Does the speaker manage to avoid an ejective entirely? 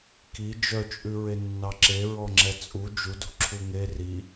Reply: no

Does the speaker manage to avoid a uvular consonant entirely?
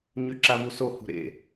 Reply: yes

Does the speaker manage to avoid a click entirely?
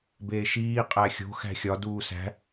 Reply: yes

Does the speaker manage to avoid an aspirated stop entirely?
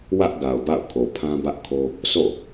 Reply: no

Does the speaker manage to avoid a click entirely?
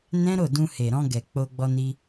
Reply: yes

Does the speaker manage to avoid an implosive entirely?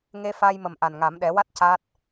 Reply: no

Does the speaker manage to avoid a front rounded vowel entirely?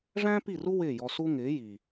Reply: yes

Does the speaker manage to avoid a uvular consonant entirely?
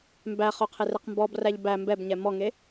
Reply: no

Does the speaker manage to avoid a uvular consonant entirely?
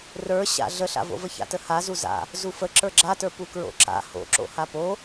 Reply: yes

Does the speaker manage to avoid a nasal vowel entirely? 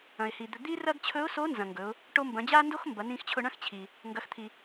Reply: no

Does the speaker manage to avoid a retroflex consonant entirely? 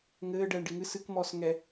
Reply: no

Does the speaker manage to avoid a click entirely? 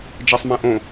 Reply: yes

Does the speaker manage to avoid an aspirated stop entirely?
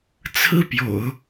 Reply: no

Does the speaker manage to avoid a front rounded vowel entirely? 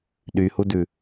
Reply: no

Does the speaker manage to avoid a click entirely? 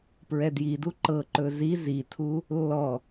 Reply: no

